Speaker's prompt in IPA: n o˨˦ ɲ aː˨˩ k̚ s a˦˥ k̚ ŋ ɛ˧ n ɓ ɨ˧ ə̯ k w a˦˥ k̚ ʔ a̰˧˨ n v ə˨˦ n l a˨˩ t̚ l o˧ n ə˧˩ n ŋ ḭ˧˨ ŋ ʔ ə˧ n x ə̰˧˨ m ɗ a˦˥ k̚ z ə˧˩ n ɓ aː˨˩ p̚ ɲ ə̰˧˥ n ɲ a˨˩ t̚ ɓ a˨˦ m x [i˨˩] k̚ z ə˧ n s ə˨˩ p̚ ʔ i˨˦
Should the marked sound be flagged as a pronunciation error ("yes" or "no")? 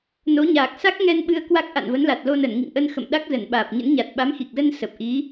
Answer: no